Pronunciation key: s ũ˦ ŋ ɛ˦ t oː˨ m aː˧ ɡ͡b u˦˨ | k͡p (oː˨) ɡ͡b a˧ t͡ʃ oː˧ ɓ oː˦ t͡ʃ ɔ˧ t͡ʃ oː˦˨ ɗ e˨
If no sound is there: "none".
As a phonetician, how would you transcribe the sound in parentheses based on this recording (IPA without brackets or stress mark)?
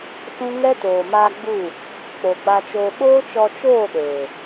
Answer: o˨